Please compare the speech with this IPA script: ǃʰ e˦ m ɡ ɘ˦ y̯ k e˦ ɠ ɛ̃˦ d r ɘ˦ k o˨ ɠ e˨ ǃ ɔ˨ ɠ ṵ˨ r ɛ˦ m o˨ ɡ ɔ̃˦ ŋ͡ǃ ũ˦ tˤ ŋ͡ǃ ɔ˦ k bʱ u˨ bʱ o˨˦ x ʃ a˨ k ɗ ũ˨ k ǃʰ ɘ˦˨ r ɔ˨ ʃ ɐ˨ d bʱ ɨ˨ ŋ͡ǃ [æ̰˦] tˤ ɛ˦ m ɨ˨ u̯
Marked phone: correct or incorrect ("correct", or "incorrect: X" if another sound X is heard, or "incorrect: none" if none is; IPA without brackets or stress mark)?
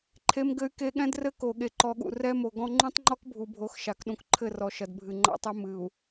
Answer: incorrect: a̰˦